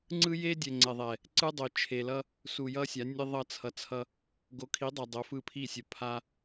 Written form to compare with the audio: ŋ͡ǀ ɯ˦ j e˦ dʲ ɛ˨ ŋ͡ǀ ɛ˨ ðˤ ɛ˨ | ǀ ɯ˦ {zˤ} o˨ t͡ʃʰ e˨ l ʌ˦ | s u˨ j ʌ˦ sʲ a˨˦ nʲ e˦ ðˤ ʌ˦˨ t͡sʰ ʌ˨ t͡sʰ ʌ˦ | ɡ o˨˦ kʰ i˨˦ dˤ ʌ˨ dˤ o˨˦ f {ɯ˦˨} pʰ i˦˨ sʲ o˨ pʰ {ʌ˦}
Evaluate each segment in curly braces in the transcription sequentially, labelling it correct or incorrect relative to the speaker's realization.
incorrect: dˤ, correct, incorrect: a˦

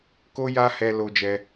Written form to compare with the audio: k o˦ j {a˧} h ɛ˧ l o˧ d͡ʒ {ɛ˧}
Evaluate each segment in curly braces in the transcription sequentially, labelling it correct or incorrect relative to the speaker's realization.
incorrect: a˦, correct

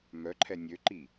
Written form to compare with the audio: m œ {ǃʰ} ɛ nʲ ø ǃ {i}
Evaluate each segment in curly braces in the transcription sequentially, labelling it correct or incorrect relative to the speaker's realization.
correct, correct

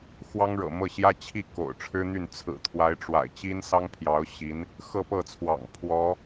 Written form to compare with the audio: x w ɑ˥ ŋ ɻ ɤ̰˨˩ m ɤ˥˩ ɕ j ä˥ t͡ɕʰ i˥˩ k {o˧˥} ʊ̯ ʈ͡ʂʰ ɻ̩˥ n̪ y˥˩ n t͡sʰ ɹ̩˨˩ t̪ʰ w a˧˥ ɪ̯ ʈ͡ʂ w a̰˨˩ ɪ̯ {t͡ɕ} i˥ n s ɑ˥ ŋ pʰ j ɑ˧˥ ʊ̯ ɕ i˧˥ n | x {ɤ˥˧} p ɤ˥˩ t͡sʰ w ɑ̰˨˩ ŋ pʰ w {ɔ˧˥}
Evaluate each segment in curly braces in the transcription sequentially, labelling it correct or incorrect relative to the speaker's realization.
incorrect: o̰˨˩, correct, correct, correct

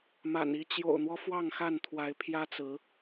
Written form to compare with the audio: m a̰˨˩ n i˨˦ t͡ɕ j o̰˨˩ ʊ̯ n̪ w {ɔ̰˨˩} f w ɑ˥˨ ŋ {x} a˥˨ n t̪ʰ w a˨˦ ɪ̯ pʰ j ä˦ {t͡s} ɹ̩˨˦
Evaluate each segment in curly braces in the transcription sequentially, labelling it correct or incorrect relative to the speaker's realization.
incorrect: ɔ˦, correct, correct

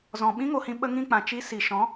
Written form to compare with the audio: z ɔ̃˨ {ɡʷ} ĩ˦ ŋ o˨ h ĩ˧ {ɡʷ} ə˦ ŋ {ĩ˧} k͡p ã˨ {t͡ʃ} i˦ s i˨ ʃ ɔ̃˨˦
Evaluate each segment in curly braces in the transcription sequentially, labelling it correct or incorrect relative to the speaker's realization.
incorrect: ɓ, incorrect: ɓ, incorrect: ĩ˦˨, correct

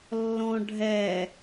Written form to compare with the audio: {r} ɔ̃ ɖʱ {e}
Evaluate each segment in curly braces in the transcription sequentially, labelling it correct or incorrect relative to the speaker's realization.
incorrect: lː, incorrect: ɛ

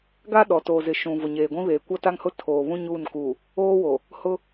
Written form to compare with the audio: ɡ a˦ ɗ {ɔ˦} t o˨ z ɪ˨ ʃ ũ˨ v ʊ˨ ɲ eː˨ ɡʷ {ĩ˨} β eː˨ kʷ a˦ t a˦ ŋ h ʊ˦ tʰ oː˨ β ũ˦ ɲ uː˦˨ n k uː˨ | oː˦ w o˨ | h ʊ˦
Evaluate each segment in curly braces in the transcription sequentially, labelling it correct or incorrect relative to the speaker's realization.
incorrect: ɔ˨, incorrect: ĩ˦

